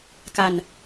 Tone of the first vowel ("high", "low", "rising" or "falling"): low